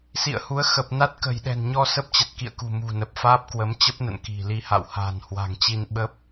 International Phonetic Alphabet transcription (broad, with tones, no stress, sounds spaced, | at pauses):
s ḭ˧˨ ə̯ h u˨˦ ə̯ x ə˨˩ p̚ n a˦˥ t̚ k ə̤˨˩ j ɗ ɛ̤˨˩ n ɲ ɔ˧ s ə˦˥ p̚ t͡ɕ ə˨˩ t̚ k ḭ˧˨ ə̯ k ṳ˨˩ m ṳ˨˩ n ə˨˩ p̚ f aː˦˥ p̚ k w ə˨˦ m t͡ɕ ə˦˥ p̚ n ə̰˧˨ n k i̤˨˩ l i˧ h a̰˧˨ w h a̤ː˨˩ n h w a̤˨˩ ŋ t͡ɕ i˧ n ɓ ə˦˥ p̚